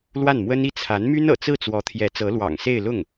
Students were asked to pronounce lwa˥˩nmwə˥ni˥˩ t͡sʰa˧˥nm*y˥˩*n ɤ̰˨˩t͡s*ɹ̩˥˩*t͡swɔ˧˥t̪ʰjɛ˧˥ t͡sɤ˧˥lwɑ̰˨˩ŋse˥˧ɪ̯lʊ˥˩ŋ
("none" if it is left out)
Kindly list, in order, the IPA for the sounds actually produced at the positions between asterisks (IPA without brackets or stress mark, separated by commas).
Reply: y˥, ɹ̩˥˩